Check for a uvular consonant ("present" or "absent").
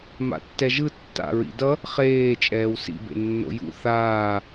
present